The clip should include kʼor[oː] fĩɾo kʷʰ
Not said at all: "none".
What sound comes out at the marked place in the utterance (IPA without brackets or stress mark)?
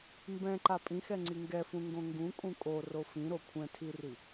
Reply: o